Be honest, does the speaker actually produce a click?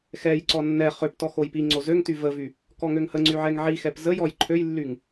yes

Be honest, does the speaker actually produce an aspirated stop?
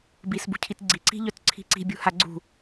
yes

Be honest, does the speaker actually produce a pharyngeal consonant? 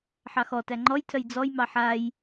yes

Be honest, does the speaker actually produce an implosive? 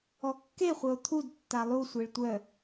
no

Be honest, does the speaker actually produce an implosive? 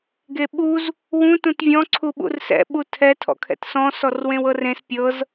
yes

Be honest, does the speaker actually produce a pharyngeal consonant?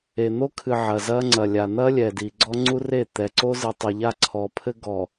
yes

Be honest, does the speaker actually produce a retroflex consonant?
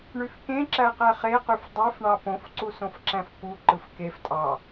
yes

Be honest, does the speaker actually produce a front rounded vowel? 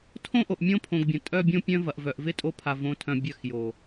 yes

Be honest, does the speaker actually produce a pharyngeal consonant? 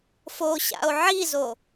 yes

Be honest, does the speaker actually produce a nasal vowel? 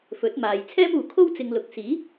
no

